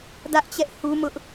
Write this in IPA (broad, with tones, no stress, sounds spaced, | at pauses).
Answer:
d ä˦ ʔ t͡ɕ ɛ˦ ʔ h u˦ m ʊ˦ ʔ